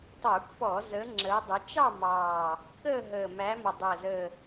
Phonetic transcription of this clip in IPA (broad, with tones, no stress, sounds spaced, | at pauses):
tˤ u˧˩˧ pː ɔː˧˩˧ z əː˨˦ ŋ͡ǁ əː˨˦ dˤ ə˨˦ t͡ʃ ɑ˥˧ m ɑː˨˩ | k əː˥˧ ɦ əː˨˩ m æ˨˦ m ɔ˨˩ dˤ əː˨˩ z əː˨˩